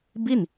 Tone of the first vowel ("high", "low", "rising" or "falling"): falling